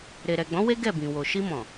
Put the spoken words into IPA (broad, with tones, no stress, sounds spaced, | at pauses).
ɾ e˨ ɾ ɛ˨ ɡ͡b ɔ̃˨˦ w e˦ ɡ ɛ˦˨ b ĩ˨ w o˨ ʃ i˧ m ɔ̃˨